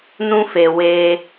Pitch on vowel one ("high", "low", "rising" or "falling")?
high